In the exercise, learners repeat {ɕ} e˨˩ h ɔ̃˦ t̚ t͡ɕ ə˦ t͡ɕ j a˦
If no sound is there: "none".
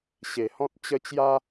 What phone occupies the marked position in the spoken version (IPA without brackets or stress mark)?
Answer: ɕ